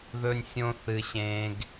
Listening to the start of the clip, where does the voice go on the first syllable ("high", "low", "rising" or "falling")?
high